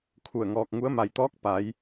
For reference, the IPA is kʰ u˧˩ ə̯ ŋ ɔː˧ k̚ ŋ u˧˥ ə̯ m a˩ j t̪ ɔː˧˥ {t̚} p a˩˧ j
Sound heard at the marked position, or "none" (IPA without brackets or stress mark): k̚